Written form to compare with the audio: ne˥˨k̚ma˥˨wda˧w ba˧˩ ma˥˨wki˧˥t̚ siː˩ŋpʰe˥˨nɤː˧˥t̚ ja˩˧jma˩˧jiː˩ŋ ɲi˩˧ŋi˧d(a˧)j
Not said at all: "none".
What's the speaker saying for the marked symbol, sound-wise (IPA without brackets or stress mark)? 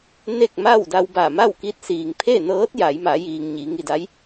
a˧˥